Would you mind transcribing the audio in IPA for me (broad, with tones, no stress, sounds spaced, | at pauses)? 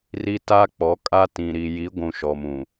r i˦ t a˦ k͡p ɔ˨˦ kʼ a˦ t ĩ˨ ɾ i˨ j i˨˦ ɡʷ ũ˨ ʃ ɔ˨ m ũ˨